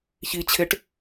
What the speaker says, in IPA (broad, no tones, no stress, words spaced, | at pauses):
çit͡ɕʰeʈ